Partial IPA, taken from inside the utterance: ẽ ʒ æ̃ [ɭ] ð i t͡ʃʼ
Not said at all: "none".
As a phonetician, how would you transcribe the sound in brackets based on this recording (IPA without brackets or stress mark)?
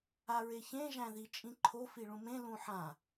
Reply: none